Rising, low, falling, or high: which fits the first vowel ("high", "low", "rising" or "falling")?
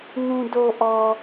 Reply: low